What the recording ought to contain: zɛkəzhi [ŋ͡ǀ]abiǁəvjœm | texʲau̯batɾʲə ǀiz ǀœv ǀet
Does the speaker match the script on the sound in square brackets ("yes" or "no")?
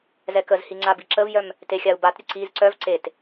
yes